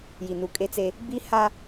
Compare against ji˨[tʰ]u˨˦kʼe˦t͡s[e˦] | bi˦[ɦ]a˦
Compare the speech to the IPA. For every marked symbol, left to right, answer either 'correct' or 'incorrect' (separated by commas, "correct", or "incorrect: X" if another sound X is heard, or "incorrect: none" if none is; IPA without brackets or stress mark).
incorrect: n, correct, incorrect: h